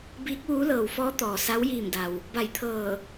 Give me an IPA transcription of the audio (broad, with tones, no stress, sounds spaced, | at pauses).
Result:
b iː˧˥ k̚ ʋ uː˧˥ l ɤː˩ w f ɔː˧˥ t̪ ɔː˩ s a˧˥ w j iː˧˩ m d a˩ w | b a˧˩ j t̪ʰ ɤː˧˩